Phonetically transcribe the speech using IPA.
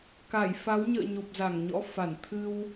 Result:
k a˧˩ j f a˨˦ w ɲ ə̰ː˧˨ ɲ o˨˩ p̚ z a˧˩ ŋ ɲ ɔ̰˧˥ f a˧˩ n t̪ʰ ɨ˧ w

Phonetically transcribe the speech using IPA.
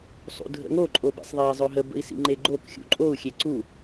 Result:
sˤ ṵ dʱ ə̰ ŋ o ǃʼ o b ḛ sˤ ðˤ e i̯ zˤ ɵ ɦ ə b ə̰ i̯ s ḭ ŋ͡ǃ e ɡ͡ǃ o k xʲ ṵ ǃʼ o u̯ xʲ e ǀ u

